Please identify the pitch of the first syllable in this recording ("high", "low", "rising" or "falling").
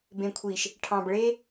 low